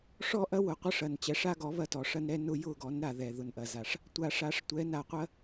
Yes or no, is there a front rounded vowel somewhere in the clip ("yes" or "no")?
no